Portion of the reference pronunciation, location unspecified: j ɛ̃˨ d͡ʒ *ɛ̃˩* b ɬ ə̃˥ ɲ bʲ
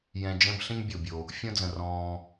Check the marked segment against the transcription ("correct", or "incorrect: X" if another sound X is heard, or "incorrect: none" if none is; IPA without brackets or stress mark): incorrect: ɛ̃˦